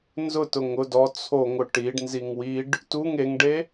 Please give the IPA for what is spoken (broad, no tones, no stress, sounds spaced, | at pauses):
n z ʊ t ʊ ŋ ʊ d ɔ t͡sʰ o ŋ ʊ ʈ i ɖ n z i ŋ w i ɖ | t u ŋ e ŋ ɖ e